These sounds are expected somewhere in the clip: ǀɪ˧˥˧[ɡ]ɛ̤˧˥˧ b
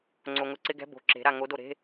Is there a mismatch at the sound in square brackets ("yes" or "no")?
no